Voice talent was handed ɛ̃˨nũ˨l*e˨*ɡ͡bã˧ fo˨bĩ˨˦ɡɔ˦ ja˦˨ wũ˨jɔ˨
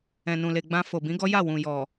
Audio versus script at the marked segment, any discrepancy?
no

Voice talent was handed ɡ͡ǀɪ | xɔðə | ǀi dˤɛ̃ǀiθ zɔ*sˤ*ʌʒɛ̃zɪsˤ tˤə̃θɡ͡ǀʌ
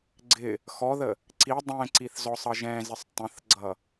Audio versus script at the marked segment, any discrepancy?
no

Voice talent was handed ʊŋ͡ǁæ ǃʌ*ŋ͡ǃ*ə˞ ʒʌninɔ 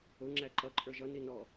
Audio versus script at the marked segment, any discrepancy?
yes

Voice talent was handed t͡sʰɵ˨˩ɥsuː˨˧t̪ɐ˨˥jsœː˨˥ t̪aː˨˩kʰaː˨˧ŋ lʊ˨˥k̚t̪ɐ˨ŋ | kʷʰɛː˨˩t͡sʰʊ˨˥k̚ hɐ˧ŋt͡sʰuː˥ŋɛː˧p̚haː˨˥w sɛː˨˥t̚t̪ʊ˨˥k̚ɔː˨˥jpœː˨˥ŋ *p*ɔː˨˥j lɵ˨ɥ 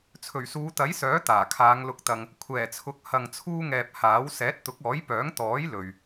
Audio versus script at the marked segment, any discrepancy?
yes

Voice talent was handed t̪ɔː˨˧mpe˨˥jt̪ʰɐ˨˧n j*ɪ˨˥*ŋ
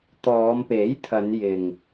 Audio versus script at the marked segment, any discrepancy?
yes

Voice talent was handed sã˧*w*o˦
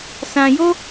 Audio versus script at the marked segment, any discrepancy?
yes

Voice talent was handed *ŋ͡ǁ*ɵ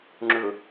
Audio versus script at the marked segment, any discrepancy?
no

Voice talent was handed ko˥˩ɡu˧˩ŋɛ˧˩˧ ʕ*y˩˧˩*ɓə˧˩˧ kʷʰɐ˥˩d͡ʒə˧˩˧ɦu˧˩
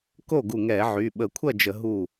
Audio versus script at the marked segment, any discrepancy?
no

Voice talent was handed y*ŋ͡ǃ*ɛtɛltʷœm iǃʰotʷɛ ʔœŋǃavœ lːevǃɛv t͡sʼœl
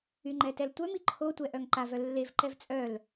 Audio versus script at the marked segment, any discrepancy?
no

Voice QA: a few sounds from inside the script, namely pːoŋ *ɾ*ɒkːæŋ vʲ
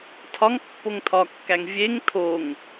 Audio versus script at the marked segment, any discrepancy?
yes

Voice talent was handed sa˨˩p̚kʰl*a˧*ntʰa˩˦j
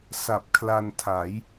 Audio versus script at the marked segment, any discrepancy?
no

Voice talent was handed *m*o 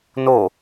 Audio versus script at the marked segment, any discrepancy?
yes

